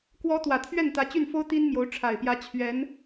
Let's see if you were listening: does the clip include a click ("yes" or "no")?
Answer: no